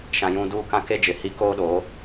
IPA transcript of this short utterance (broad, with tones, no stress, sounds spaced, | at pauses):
ʃ ã˨ j ũ˨ d uː˦˨ k ã˦ k e˦ d͡ʒ ɪ˨ h i˦ k oː˦ ɗ oː˨˦